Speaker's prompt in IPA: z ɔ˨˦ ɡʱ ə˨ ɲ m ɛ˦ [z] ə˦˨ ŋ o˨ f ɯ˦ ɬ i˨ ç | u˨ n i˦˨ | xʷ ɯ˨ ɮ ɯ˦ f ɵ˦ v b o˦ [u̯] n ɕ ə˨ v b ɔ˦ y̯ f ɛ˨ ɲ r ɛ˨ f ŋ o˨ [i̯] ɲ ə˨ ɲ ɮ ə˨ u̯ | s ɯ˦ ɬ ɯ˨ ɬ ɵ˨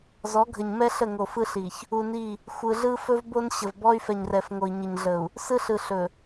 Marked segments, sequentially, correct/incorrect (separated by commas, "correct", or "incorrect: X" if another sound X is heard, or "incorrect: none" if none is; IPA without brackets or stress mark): incorrect: ɬ, incorrect: none, correct